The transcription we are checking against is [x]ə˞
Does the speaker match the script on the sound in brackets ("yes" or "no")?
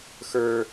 yes